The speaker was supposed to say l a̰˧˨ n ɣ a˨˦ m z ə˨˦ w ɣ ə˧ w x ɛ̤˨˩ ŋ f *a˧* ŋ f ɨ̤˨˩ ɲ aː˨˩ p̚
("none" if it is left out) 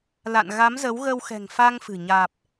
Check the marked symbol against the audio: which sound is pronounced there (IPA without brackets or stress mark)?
a˧